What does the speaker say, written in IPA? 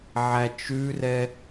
ʕ æ t͡ʃ ʉ r ɛ

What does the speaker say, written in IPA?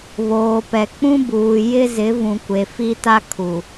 β oː˨ p ɛ˨ k͡p ũ˦ b uː˨ j ɪ˦ z ɪ˨˦ v ũ˨ kʷ e˨ f i˦ t a˦ kʰ u˨

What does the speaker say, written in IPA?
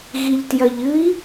ɣ i ʎ t j ɐ ʎ ɨ i̯

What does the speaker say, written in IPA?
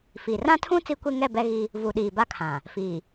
f iː˨ r ã˦ tʰ ũ˦ t͡s i˦ kʷ e˦ ŋ ɛ˦˨ b ɛ˦ ɣ i˦ | v u˨ ɗ iː˨ b a˦ kʰ ã˨ | f iː˨

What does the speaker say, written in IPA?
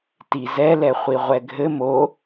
t i z ɛ l ɛ χʷ i ʁʷ ɛ ɡʱ ɘ m o

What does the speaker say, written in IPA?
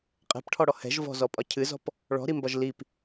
qʼ ɛ̤ p ʈʰ ɔ ɽ ɔ h ɛ̤ ʒ v ɔ̤ z ɔ pʼ ɒ cʰ ɨ z ɔ̤ p | ɭ ɔ̤ ɾ i m b ɒ ʒ l i p

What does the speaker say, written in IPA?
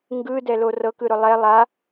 ŋ ɡ ɯ d ɛ l o r ɤ k ɯ ɾ ʊ lˠ ɛ lˠ a

